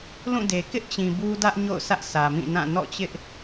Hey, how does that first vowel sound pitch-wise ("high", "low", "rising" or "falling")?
falling